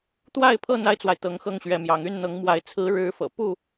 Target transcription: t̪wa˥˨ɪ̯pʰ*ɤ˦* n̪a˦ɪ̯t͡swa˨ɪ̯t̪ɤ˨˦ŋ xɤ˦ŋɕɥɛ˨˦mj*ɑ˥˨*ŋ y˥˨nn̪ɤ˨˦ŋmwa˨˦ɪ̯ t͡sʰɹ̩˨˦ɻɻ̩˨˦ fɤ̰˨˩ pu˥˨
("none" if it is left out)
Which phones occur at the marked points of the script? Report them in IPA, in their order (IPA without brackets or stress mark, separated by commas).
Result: ɤ˥˨, ɑ˨˦